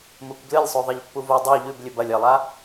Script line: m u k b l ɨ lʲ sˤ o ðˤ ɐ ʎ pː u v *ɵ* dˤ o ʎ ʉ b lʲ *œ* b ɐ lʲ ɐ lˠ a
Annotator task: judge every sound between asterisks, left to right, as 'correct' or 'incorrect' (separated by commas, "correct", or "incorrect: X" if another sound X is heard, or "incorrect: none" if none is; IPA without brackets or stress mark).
incorrect: o, incorrect: ɵ